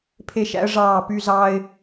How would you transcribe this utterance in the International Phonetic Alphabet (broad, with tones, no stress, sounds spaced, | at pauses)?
pʰ e˥˧ ʃ æ̰˥ ə̯ ʐ ɑː˥˧ p y˥ z ɑː˥ ɪ̯